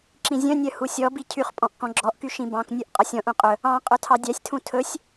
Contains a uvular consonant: yes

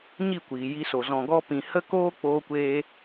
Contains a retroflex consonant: no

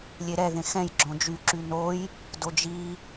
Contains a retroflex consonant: no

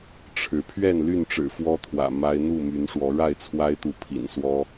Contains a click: no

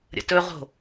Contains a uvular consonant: yes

